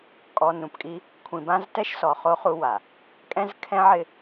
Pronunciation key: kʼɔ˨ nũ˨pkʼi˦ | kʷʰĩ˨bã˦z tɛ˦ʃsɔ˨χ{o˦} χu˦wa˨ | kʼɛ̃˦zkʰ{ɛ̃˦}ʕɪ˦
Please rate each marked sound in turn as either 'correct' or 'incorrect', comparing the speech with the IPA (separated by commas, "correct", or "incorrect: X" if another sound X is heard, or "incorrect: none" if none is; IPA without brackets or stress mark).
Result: correct, correct